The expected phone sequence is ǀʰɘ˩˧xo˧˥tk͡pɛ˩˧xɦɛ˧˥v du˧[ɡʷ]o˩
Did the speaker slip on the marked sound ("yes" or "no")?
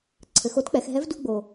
yes